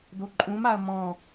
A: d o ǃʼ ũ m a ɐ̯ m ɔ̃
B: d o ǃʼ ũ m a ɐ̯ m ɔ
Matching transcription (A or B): A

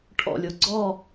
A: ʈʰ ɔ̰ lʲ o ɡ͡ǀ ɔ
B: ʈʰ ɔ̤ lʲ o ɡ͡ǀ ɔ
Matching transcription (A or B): A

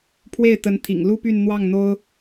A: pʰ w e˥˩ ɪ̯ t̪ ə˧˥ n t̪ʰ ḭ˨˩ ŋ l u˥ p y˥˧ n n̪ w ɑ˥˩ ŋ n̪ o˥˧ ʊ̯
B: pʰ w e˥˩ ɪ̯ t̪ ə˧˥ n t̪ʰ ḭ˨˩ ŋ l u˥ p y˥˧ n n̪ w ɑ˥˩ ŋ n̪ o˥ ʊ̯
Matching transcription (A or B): B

